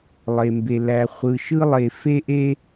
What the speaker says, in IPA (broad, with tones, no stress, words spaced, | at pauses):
lˠe˩mbe˩ læ˩ χʷɯ˩ʃɯ˥lˠe˩ fe˥ʔe˥